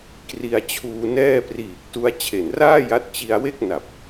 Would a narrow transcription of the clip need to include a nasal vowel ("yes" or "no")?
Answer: no